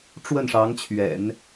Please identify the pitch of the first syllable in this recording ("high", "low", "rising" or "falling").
falling